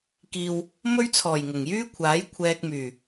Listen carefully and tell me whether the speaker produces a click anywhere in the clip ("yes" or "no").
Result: no